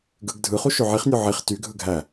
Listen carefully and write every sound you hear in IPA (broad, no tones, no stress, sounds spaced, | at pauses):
ɡ ɯ ɡ dʱ ɯ χ u ʃ ø ʕ i χ nʲ o ʕ i χ t y ɡʱ ɯ ɡʱ æ